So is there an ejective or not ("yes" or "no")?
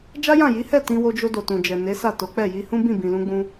no